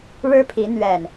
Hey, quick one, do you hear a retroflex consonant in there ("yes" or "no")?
yes